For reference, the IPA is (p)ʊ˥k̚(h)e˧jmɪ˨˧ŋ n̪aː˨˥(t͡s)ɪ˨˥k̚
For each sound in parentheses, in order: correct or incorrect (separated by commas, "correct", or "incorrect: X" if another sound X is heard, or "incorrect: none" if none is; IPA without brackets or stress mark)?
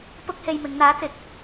correct, correct, correct